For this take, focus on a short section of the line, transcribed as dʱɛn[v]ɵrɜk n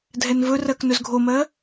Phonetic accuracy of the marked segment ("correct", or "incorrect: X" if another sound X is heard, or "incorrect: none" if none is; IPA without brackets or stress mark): correct